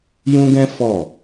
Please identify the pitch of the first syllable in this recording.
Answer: high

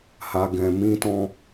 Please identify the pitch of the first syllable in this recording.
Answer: low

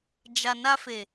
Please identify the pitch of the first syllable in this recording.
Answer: low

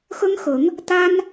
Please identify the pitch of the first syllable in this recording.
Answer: high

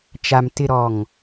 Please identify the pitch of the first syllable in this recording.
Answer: low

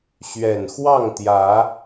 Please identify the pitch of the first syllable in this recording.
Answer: low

